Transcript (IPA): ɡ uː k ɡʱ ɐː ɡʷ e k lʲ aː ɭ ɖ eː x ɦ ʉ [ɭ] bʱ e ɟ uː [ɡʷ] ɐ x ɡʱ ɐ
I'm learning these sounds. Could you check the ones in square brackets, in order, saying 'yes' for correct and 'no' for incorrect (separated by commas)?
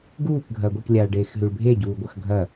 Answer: yes, yes